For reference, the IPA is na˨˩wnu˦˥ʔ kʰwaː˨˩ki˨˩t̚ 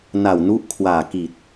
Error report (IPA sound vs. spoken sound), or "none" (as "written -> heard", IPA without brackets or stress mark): none